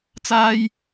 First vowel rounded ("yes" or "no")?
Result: no